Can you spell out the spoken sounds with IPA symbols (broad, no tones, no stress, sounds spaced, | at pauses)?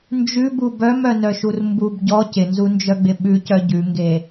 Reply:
n d͡ʒ ʉ b u b œ m œ n œ ʃ u r m b u b ɟ ɔ c ɪ n z u n d͡ʒ œ ɡ͡b ɪ ɓ ʉ c œ ɟ ʉ ŋ ɡ e